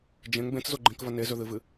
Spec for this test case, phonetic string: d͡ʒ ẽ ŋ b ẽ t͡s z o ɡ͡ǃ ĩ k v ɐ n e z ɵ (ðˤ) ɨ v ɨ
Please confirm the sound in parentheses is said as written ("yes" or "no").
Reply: no